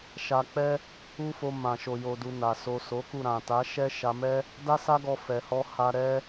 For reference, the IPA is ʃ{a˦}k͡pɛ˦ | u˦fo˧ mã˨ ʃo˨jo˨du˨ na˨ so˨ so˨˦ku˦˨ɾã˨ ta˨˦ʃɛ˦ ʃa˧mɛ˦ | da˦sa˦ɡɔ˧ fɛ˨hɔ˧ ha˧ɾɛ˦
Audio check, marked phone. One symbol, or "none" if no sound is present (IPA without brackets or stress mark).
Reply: a˧